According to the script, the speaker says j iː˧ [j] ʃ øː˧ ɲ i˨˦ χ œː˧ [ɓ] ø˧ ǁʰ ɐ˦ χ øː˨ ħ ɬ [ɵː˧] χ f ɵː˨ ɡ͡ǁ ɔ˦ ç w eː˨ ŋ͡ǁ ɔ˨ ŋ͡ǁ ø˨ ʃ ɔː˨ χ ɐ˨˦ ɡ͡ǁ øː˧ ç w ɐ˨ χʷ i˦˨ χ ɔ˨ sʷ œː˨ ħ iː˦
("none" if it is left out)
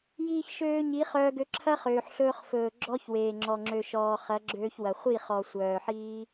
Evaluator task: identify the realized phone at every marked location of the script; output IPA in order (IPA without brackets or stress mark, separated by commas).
ç, ɡ, ɵː˧